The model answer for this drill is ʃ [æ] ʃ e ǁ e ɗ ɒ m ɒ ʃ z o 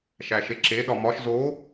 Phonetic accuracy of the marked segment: correct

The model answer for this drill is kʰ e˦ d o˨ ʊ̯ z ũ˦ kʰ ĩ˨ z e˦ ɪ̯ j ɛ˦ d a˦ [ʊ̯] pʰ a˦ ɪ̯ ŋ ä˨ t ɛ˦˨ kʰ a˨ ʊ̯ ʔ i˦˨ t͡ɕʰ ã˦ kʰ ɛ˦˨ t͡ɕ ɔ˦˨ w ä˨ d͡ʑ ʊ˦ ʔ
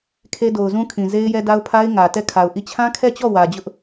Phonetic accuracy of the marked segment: correct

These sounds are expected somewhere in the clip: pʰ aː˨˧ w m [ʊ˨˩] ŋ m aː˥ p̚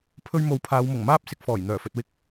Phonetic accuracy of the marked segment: correct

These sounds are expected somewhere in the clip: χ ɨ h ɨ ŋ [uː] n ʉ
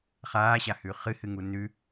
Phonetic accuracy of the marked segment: incorrect: u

